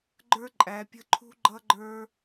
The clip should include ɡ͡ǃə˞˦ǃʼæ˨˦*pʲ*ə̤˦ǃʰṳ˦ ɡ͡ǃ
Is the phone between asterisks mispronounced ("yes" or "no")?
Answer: no